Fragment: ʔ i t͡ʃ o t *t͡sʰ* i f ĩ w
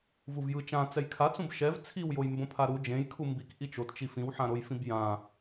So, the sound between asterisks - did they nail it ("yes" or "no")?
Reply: no